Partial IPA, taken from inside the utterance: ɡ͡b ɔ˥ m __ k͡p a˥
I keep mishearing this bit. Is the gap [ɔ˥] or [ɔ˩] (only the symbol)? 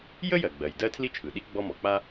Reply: ɔ˩